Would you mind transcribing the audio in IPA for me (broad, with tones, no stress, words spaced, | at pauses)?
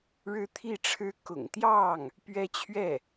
ɻɻ̩˥t̪ʰi˥˩ʈ͡ʂʰɻ̩˥ kʊ̰˨˩ŋt̪jɑ˥˩ŋ | pɥɛ˥t͡ɕʰɥɛ˥˩